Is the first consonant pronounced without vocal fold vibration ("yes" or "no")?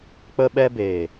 yes